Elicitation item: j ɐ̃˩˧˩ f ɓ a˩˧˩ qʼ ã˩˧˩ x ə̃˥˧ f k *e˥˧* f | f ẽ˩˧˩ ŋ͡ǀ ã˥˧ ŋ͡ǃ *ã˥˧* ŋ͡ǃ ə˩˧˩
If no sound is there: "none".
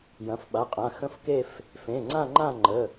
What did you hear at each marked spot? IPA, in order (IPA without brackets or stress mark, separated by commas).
e˥˧, ã˥˧